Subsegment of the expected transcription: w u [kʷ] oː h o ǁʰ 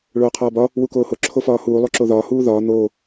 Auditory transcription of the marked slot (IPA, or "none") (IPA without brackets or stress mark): k